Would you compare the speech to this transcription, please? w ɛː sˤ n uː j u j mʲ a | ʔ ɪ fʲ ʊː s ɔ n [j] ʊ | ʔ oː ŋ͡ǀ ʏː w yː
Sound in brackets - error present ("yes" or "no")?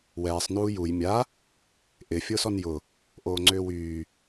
no